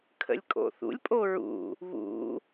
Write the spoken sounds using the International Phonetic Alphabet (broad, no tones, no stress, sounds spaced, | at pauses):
kʰ ə̰ lʲ kʼ o̰ θ ṵ lʲ pʼ o ɹ ṵ | β ṵ